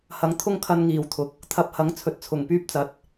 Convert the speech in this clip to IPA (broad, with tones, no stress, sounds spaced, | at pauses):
h ɐ˨˥ ŋ t̪ʰ ʊ˥ ŋ kʰ ɐ˧ n ŋ iː˨ w t̪ʰ ʊ˨ k̚ | t̪ʰ ɐ˨˥ p̚ h ɐ˨˥ ŋ t͡sʰ ɵ˧ t̚ t͡sʰ ʊ˨ ŋ p yː˥ p̚ t͡s ɐ˨˥ t̚